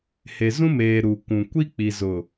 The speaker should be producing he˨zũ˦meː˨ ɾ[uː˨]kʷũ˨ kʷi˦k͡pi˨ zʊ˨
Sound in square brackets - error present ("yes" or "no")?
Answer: yes